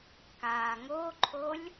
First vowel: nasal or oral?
oral